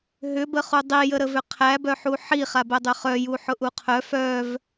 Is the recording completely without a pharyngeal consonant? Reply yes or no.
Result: no